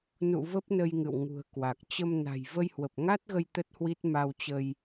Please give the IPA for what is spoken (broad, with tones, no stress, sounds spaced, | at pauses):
n ṵ˧˨ v ə˦˥ p̚ n ə˧ j ŋ ɨ̰˧˨ w ŋ ṳ˨˩ ə̯ k w a˨˩ k̚ t͡ɕ ə˧ m n a̤˨˩ j v ə˧ j h w ə˨˩ p̚ ŋ a˦˥ t̚ ɣ ə˧ j t̪ ə˦˥ t̚ h w i˦˥ t̚ m a˧ w t͡ɕ ə˧ j